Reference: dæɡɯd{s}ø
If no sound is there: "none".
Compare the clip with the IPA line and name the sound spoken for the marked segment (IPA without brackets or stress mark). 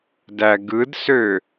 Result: s